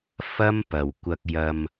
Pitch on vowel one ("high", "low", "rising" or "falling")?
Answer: high